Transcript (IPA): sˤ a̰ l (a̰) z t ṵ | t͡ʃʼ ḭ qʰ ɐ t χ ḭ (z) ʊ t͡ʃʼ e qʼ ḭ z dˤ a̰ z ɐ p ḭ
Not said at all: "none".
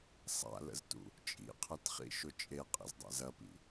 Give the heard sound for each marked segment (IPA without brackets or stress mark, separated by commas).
ə̰, ʃ